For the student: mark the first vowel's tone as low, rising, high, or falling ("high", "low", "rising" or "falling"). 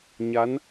rising